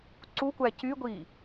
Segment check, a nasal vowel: absent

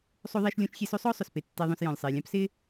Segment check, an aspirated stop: absent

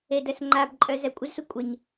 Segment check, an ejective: present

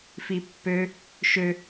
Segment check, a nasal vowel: absent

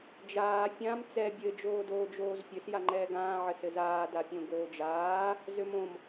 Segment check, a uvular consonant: absent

